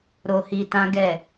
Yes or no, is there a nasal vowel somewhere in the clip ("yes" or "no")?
yes